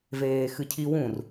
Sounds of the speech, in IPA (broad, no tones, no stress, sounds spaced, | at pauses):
v eː x ɨ cʰ i w ũ r